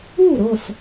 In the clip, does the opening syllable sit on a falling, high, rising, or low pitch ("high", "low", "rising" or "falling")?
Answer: falling